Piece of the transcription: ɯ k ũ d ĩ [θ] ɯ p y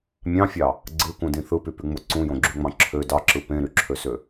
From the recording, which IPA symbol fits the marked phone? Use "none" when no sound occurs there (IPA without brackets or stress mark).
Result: θ